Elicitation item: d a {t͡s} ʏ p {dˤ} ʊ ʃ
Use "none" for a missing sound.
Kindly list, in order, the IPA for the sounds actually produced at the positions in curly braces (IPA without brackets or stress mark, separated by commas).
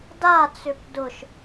t͡s, d